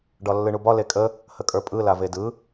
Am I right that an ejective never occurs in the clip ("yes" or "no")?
no